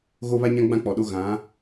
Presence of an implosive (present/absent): present